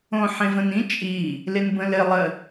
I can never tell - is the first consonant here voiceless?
yes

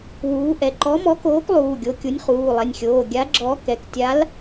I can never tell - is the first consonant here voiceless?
no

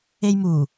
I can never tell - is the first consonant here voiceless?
no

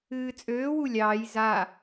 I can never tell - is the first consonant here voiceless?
yes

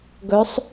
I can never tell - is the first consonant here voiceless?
no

